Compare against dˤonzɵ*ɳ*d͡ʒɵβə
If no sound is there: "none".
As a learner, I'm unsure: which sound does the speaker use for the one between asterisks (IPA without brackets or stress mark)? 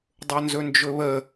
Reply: n